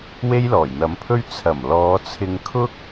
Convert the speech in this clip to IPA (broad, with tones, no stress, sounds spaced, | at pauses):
w e˥ j l ɔː˨˩ j n̪ ɐ˨˥ m pʰ ɵ˥ ɥ t͡sʰ ɐ˨˩ m l ɔː˨˧ t͡sʰ ɪ˧ ŋ kʰ ʊ˥ k̚